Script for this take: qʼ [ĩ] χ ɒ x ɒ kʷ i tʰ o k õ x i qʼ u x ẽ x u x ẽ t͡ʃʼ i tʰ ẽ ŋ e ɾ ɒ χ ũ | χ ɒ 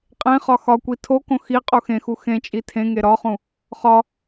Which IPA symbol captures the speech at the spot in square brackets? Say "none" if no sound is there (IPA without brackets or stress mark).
ẽ